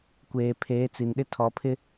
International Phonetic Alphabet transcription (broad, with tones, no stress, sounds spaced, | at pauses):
kʷ eː˨ pʰ eː˨˦ t͡s i˨ n ɗ ɪ˦ tʰ ɔ˨ pʰ ɪ˦